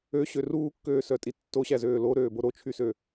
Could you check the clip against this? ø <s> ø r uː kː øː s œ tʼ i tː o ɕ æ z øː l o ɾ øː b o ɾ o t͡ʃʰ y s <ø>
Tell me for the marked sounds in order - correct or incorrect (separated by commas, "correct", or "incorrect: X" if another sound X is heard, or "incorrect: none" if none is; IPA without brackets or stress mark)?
incorrect: ɕ, correct